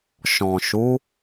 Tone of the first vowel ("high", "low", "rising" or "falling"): low